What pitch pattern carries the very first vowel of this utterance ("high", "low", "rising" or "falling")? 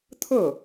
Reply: falling